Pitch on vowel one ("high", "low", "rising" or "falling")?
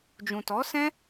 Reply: low